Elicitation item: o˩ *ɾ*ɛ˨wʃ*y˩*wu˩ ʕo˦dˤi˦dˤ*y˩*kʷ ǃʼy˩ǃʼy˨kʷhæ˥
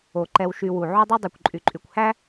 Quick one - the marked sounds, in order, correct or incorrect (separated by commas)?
incorrect, incorrect, correct